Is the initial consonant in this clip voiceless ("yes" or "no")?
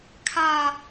yes